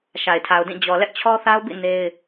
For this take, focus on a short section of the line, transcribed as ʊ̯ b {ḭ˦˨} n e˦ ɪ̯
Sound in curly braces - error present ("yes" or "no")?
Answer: no